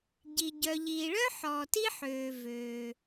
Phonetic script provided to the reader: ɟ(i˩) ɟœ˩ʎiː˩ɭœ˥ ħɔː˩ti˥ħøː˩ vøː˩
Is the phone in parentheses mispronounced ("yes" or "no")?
no